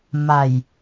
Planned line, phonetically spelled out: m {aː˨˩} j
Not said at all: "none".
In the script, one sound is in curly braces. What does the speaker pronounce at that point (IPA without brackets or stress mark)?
a˨˩